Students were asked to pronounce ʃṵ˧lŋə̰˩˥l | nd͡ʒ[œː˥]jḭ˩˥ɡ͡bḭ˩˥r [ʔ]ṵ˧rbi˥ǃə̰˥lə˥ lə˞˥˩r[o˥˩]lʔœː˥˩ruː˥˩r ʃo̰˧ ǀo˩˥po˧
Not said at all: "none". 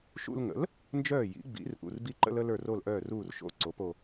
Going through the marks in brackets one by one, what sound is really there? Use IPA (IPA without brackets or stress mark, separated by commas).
œː˥˩, ʔ, o˥˩